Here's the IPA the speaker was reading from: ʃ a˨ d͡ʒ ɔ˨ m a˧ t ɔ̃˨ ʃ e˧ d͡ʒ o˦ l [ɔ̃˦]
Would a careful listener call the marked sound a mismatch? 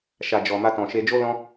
no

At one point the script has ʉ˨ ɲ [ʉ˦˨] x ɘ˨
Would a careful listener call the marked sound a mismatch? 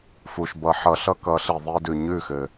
no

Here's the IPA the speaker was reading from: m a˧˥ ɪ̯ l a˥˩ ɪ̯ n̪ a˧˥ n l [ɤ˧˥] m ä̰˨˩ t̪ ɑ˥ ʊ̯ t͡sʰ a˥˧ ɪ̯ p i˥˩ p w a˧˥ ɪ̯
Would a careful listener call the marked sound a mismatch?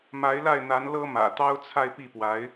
yes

